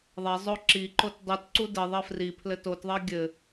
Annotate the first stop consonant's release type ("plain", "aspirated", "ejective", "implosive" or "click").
click